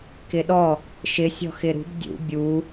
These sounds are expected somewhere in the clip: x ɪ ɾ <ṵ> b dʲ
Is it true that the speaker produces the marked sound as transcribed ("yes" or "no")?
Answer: no